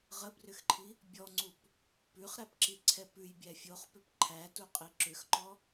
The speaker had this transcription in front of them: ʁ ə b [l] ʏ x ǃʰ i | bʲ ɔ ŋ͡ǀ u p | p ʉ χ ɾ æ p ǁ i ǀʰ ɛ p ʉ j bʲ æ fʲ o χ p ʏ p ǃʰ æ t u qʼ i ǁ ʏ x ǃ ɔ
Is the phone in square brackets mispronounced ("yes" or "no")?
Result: yes